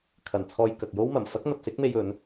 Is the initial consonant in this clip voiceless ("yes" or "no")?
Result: yes